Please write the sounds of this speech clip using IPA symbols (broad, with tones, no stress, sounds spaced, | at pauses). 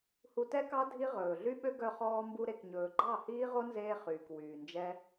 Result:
h u˧ t ɛ˦ k ɑ˦ dʱ i˦ ʁ ɵː˨ ɮ y˦ ɓ ø˦ ɡ œ˧ χ ɔː˧ m b u˧ ɾ e˨ k ɲ ɵː˨ ɡ͡ǃ ɑ˦˨ h iː˦ ʁ o˦ n z eː˧ χ yː˨ k w yː˨ n d͡ʒ ɛ˦